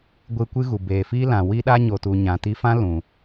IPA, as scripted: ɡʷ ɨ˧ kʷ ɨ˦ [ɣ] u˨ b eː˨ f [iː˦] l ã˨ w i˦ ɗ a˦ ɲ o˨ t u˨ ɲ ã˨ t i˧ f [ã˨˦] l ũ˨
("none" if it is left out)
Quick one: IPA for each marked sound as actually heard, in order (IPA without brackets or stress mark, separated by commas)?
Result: ɣ, iː˦, ã˦